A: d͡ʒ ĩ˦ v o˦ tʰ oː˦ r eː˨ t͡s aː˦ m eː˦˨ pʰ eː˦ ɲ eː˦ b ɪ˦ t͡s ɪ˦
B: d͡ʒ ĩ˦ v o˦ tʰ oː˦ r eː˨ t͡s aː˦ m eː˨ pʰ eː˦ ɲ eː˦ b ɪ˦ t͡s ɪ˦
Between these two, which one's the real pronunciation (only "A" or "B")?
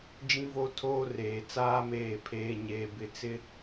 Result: A